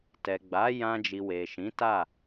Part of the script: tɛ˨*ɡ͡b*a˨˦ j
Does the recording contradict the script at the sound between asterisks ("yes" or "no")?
no